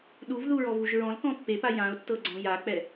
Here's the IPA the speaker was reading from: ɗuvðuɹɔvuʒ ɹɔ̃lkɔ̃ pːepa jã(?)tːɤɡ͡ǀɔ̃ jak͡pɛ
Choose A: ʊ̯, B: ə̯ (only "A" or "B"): A